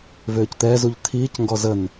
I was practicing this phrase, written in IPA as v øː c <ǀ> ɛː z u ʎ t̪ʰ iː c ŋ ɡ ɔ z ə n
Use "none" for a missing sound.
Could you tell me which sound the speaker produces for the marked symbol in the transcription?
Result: t̪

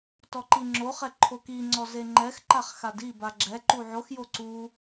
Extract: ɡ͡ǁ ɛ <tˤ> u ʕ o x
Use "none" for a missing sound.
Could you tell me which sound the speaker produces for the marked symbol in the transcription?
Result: ǃ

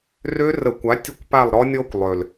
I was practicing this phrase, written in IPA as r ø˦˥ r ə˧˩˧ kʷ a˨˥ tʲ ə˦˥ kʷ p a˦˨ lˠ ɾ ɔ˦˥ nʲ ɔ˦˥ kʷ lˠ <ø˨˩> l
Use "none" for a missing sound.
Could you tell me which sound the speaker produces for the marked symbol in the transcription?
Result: ø˨˩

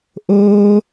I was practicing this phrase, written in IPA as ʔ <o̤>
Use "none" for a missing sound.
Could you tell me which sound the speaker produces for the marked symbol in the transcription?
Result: o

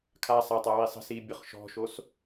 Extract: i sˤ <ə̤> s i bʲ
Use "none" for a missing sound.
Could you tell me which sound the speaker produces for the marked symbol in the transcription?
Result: ə̤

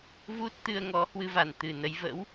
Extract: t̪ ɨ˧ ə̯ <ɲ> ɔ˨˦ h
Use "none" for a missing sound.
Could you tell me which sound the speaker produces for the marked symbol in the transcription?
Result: ŋ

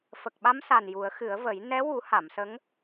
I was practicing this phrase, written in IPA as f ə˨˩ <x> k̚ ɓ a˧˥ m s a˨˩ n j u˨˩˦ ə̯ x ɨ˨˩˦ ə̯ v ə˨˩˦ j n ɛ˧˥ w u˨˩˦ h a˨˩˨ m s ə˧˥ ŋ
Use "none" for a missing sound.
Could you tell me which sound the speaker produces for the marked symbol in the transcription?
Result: none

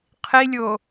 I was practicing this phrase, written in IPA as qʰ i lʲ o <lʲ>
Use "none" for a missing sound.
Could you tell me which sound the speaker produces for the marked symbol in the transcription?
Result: none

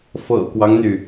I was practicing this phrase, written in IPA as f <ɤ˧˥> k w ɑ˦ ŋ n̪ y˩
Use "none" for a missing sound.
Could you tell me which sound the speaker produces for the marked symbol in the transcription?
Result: ɤ̰˨˩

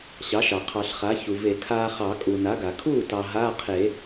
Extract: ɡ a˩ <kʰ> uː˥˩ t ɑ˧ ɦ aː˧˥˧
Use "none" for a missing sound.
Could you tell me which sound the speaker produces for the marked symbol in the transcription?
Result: kʰ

